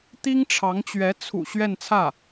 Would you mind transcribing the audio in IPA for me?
t̪i˥ŋʈ͡ʂʰɑ˧˥ŋt͡ɕɥɛ˧˥ t͡sʰṵ˨˩ ɕɥɛ˥˧nt͡sʰä˥˩

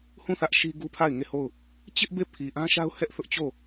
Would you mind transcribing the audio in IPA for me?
hũ˦˨ θä˦ʔʃi˦ ɡu˦pʰa˦˨ɪ̯ŋe˦˨ho˦˨ʊ̯ | t͡ɕɪ˦ʔ be˦˨pʰi˨ʔã˦ʃa˦ʊ̯ hɛ˦ʔθʊ˦ʔt͡ɕo˦˨

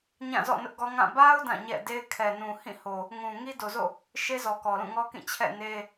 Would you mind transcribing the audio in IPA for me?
ɲã˦˨zɔ̰˦˨ nʊ˦ʔɡɔ˦ŋã˦˨ ba˦ʊ̯ dã˦˨ɲɛ̰˦˨de˦ɪ̯ kʰɛ˨nũ˨ hĩ˦˨ho˨ | ŋũ˨ŋi˦ do˨zo̰˦˨ | ʃe˦zɔ˨ kɔ˨lũ˦˨ŋɔ˦kĩ˦˨ t͡ɕʰɛ̰˦˨ ne˦

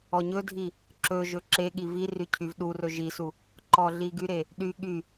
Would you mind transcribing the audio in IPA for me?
ɔɲɵdʱi | ǁɵʒɵ ǁeɠi viry cʰyvɗurɵ ʒisu | ǃɔɮiɡyɾe | ɗy ɠy

